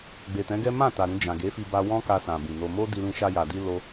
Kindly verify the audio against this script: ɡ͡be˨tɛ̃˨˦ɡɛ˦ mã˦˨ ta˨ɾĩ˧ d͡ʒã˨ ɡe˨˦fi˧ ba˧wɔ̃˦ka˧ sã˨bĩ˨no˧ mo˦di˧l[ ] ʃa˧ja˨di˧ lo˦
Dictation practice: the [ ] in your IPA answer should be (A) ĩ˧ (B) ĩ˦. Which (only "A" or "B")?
A